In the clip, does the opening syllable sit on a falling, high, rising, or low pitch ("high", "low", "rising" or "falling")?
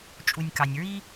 low